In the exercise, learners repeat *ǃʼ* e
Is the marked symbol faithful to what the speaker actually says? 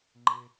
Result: no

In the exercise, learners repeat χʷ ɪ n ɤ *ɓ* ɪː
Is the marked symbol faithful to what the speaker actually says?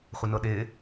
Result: no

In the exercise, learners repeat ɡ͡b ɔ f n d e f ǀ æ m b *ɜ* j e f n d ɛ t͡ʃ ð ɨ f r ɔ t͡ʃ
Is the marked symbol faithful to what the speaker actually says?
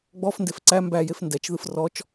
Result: no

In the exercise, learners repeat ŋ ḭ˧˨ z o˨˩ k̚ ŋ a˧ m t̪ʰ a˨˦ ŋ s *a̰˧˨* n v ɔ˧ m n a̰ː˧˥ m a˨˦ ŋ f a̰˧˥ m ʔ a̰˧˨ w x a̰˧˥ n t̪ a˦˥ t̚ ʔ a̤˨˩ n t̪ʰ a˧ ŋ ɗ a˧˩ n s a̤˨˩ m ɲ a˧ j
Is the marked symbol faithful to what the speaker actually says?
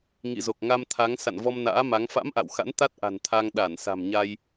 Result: yes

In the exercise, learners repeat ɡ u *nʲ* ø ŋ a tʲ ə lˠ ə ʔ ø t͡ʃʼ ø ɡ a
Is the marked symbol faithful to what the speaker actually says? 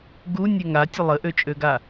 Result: yes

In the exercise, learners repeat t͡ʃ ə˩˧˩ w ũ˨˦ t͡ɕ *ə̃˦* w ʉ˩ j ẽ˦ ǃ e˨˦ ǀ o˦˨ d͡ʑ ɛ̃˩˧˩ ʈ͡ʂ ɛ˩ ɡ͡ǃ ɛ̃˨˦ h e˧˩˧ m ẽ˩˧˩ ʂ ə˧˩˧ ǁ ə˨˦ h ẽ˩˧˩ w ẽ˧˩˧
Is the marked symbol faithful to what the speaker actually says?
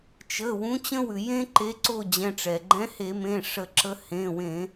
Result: yes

